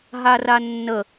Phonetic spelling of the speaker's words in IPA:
ɦ a r a nː ə

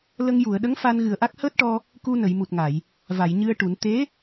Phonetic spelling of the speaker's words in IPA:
l ə˧ ŋ j u˨˩˨ ə̯ ɗ ə˧˥ ŋ f a˧ n ɣ ɨ˨˩ ə̯ ʔ a˦˥ k̚ h əː˦˥ t̚ ʈ ɔ˧ | k u˧ n ə˨˩˨ j m u˨˩ t̚ ŋ a˨˩˨ j | v a˨˩˨ j ɲ ɨ˧ ə̯ ʈ u˨˩˦ n t̪ e˧˥

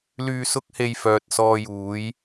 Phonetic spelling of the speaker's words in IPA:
l yː˧ s ʊ˥ k̚ h e˧ j f œː˨ t̚ s ɔː˧ j uː˨˥ j

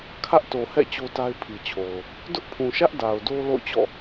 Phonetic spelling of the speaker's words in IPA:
kʰ ä˦ ʔ t o˨ h ɛ̰˦˨ t͡ɕ o˦ t a˦ ɪ̯ pʰ i˨ t͡ɕʰ o˨ ʊ̯ | d ʊ˦ ʔ pʰ ũ˨ ʃ ä˦ ʔ d a˨ ʊ̯ d o˦ l o̰˦˨ ʊ̯ t͡ɕ ɔ̰˦˨

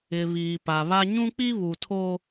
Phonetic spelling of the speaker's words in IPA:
ɪ˨ β iː˨ p a˨ β a˦ ɲ ũ˦ k͡p i˦ β u˨ tʰ o˦

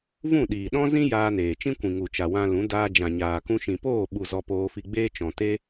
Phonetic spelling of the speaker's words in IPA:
v ũ˦˨ ɗ iː˨ ɗ ɔ̃˦ z ĩ˦ j aː˧ n eː˨ t͡ʃ ĩ˦ kʷ ĩ˨ ŋ u˨ t͡ʃ a˨ w ã˧ l ũ˨˦ d aː˧ d͡ʒ ã˨ ɲ aː˨ k ũ˧ ʃ ĩ˨ p oː˦˨ ɓ u˨ z ɔ˧ p oː˧ f i˧ ɡ͡b eː˦ t͡ʃ ɔ̃˨ t e˦

